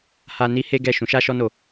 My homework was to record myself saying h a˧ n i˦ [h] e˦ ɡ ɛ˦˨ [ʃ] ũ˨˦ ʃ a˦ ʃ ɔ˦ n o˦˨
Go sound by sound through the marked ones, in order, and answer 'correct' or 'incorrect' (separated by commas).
correct, correct